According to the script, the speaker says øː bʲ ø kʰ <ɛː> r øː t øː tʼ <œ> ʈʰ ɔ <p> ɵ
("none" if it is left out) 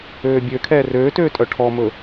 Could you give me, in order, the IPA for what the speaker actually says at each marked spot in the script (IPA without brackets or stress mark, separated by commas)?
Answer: ɛː, œ, m